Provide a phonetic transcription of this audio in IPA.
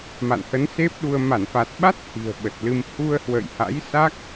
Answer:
m a̰˧˨ n h ə˨˦ n s e˦˥ p̚ ɗ u˧ ə̯ m a˧˩ n f a˨˩ t̚ ɓ a˦˥ t̚ h i̤˨˩ ə̯ ɓ ə˨˩ t̚ l ɨ˧ m h u˧ ə̯ h w ə̰˧˨ j h a̰˧˥ j s a˦˥ k̚

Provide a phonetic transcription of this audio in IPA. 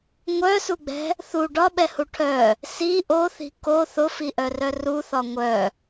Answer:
ŋʷ œ s u ɡ͡b ɛ̤ | θ u ɖ ɒ ɓ ɛ h u ʈʰ œ | s i ʔ o θ i̤ k o θ ʊ f i ʔ œ r œ r u θ ɒ ŋʷ œ

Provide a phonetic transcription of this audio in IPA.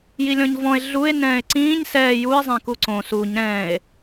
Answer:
j i lʲ ɔ̃ ɲ v ɔ̃ e̯ ɮ u e̯ n ɛ̃ː e̯ ǀ ĩː ɲ s ɛː j u e̯ zˤ ɛ̃ k u ǀ õ s u ɲ ɾ ɛ̃ e̯

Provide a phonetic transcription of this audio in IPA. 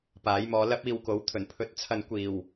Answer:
p aː˨˥ j m ɔː˧ l ɐ˥ p̚ iː˧ w k o˨˥ w t̪ʰ ɵ˨˩ n pʰ ɵ˨ t̚ t͡sʰ ɐ˨ n kʷ iː˨˩ w

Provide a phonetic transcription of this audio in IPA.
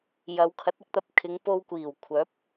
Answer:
j ɐ˨˧ w kʰ ɐ˨˥ t̚ ɪ˨˥ k̚ t̪ ɐ˨ p̚ kʰ ɪ˨˧ ŋ p o˧ w kʷ iː˨˩ w kʷʰ œː˨˥ p̚

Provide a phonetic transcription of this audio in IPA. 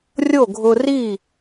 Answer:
rʲ o˥˩ ɡʱ ʊ˧ r i˥˩

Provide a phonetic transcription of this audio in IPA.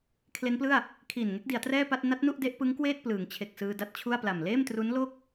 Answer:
kʰ l e˦˥ n p l ɯ˥˩ a̯ | kʰ iː˨˩ n ŋ e˦˥ k̚ d i˩˦ a̯ t r ɛː˥˩ p a˥˩ t̚ n a˦˥ t̚ n u˥˩ ʔ d e˦˥ ʔ p ɯ˦˥ ŋ k w eː˥˩ t̚ p l ɯː˩˦ ŋ t͡ɕʰ e˨˩ k̚ s ɯː˧ d a˦˥ t̚ t͡ɕʰ u˥˩ a̯ p l a˨˩ m l eː˥˩ m t r u˦˥ n l o˥˩ k̚

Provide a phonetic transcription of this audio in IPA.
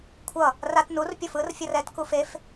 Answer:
kʷʰ ʌ | r a t n u r pʲ o f ɯ r fʲ ʌ r ɛ t k u f e f

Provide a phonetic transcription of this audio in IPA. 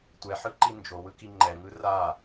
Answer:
tʷ ɛ ħ ɯ ǃ i n d͡ʒ o w ɯ k i ŋ͡ǃ ɛ ŋ ɯ r a

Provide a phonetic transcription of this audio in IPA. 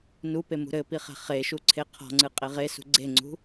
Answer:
n u p e m ṳ ɾ ɘ p i χ ɛ̤ χ e ʃ u ǀʰ e qʰ ɔ̤ ŋ͡ǀ ɨ qʼ e ʁ e s ṳ ɡ͡ǀ e ŋ͡ǀ ṳ

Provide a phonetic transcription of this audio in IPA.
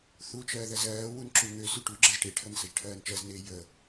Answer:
θ u t͡ʃ ɜː ð ɜ z ɜː w u n ǁ u ŋ ø s y ʈ u ɡ͡ǁ ɜ z ʈ e ʈʰ ə n s ə ʒ ʈʰ ɜː n t͡ʃ ɜ z n eː j ə

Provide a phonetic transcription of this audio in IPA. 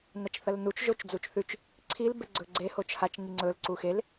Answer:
n ɐ t͡ʃ θ ɐ l n u t͡ʃ ʒ o t͡ʃ d͡z u t͡ʃ θ ʉ t͡ʃ | ǀʰ i l b e ɡ͡ǀ ɵ ɡ͡ǀ e h o t͡ʃ h a t͡ʃ ŋ i ŋ͡ǀ ɵ l ǀ u x e l

